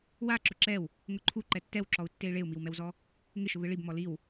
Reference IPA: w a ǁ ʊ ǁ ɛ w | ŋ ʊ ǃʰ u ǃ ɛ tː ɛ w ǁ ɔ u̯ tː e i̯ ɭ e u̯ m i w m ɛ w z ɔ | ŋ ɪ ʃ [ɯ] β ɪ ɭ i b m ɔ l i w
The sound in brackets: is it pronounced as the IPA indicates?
no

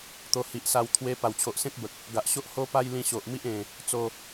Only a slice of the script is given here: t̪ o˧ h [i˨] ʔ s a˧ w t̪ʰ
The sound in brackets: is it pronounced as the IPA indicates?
yes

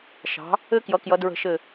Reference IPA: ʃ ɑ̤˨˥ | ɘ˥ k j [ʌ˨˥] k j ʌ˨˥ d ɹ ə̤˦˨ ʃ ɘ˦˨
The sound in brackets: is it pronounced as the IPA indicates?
yes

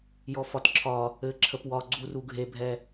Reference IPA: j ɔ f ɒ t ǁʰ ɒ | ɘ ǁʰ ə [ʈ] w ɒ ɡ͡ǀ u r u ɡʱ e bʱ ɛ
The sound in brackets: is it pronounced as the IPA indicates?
no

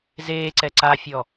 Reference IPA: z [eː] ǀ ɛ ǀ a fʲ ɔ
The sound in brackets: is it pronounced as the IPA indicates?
yes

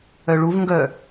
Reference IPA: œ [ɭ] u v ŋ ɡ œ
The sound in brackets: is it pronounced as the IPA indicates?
yes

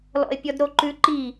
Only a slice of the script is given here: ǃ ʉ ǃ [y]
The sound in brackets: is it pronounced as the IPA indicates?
no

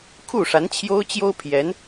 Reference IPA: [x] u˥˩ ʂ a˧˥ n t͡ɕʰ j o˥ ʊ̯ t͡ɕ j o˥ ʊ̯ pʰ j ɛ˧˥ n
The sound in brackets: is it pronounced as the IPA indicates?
no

